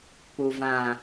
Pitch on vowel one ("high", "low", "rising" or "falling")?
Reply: low